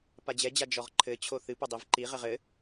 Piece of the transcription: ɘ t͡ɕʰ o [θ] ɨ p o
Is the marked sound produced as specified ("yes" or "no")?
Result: yes